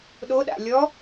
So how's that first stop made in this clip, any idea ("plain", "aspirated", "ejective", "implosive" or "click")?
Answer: implosive